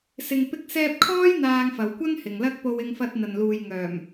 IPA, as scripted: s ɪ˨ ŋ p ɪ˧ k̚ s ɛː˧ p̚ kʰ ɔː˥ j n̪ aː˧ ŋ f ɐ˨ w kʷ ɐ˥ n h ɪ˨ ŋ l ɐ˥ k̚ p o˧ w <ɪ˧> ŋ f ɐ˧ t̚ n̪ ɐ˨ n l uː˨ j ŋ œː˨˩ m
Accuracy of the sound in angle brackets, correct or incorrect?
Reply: correct